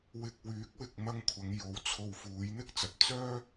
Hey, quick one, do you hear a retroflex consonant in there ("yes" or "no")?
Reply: no